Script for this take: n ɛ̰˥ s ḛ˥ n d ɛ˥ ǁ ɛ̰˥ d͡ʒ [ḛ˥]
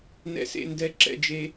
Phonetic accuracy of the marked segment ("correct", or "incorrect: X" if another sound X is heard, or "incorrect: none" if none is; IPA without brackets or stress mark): incorrect: e˥